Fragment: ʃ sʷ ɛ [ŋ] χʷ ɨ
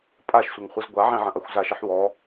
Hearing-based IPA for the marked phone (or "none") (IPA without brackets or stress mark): ŋ